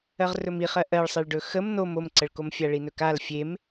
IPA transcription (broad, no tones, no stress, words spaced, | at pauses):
ɜʁrɵmiχɜ ʔɜɭsˤeɭɖɵ xəm nom omǀəɭkom fʲaɭinɵkal fʲem